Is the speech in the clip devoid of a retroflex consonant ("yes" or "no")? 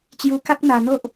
yes